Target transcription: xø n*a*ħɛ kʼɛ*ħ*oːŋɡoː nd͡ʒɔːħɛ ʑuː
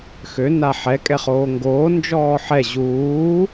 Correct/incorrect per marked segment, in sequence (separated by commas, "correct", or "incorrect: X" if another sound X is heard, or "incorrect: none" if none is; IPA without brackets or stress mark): correct, incorrect: χ